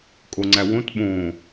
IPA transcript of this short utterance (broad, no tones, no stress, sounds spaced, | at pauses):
kʼ o ŋ͡ǀ æ w õ t ɓ õ